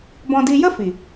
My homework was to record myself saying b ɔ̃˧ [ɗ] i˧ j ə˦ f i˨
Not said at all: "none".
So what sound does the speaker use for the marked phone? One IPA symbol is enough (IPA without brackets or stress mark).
d